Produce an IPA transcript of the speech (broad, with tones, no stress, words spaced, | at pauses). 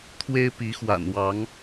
t̪ʰwe˦ɪ̯pi˨˦xwa̰˨˩nwɑ˨˦ŋ